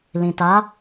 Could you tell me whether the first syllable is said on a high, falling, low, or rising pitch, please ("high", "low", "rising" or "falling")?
low